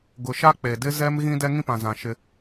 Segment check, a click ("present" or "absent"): absent